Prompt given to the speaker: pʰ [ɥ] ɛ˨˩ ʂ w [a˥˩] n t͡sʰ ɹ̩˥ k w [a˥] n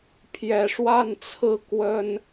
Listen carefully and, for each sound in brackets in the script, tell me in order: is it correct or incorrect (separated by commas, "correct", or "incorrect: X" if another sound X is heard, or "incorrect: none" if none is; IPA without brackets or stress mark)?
incorrect: j, correct, incorrect: ə˥